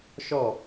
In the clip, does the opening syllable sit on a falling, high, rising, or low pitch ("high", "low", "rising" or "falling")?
falling